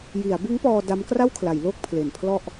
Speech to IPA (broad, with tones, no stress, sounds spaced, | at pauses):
j i˩˦ a̯ b ɯ˦˥ ŋ p ɔː˧ d a˦˥ m k r a˥˩ w kʰ l a˩˦ j l o˥˩ k̚ pʰ l e˨˩ n pʰ l ɔ˥˩ ʔ